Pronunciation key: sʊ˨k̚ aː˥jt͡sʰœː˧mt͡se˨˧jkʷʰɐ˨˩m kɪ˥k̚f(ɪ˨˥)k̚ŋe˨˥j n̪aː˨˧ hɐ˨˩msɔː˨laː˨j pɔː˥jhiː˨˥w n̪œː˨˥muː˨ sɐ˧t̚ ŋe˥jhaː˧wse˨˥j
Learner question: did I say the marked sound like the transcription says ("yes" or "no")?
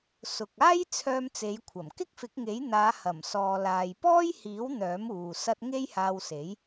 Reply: yes